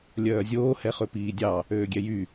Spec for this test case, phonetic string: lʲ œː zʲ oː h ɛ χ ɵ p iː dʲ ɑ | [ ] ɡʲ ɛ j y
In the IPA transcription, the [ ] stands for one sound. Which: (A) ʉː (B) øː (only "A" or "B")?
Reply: B